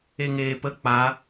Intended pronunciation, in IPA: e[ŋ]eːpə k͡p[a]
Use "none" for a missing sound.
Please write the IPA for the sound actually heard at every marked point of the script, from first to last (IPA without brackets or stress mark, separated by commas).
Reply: ŋ, a